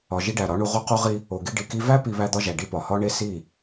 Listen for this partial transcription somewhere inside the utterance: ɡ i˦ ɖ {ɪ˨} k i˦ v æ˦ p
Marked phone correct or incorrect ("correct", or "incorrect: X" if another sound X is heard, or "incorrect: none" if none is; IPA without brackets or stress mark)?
incorrect: i˨